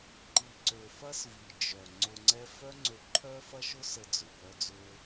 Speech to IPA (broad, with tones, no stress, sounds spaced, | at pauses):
ǃ i˨ ǀ ø˨ f ɐ˦ s v i˨ d͡ʒ œ˨ ŋ͡ǀ ʊ˧ ŋ͡ǀ ɛ˦ f œ˦ ŋ͡ǀ ø˧ ǃʰ œ˦ f ɐ˦ ʃ ʊ˦ s ə˧ d͡z ʊ˨ p œ˦ d͡z ø˦